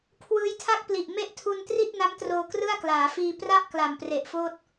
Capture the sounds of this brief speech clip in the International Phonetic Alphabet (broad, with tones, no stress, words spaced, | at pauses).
kʰwɯː˦˥jtʰa˥˩k̚pli˨˩ʔ me˦˥ʔtʰu˧n tri˥˩t̚na˦˥mtroː˧ krɯ˥˩a̯klaː˩˦fiː˧ pra˥˩ʔ kla˨˩mpre˨˩ʔfoː˥˩t̚